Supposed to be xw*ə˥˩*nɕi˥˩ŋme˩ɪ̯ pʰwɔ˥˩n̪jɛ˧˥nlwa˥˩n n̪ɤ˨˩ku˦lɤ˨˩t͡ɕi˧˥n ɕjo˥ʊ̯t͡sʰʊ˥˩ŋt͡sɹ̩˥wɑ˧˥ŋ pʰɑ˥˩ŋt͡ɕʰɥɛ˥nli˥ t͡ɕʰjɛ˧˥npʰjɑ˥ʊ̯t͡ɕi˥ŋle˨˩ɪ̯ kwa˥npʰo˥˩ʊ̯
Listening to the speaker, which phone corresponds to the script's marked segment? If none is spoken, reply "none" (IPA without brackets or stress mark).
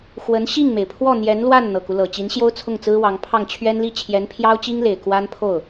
ə˧˥